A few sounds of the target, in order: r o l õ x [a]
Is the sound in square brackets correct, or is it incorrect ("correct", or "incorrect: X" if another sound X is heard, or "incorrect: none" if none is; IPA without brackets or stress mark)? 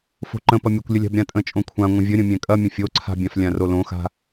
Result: incorrect: a̤